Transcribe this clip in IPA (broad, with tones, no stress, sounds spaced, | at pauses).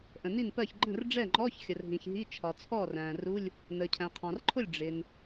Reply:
ʔ ə̃˩ n i˥˩ n p ɜ˥˩ ç ɡ͡ǃ ə̃˥˩ r ɖ͡ʐ ɛ˥˩ ŋ͡ǃ ɔː˧˥˧ ç xʲ ə˩ r ɦ ĩ˩ ç ɦ i˧˥˧ t͡ʃʰ ɒ˩ t͡sʰ ɔː˥˩ r æ̃ː˩ r u˧˥˧ lʲ | n əː˩ cʰ æ̃˩ qʰ ɑ̃˩ r ǃʰ ʊ˥˩ lʲ ɖ͡ʐ ɪ˩ n